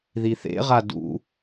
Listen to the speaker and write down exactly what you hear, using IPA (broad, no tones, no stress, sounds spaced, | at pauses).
ð i θ ḛ ʁ a d ṵ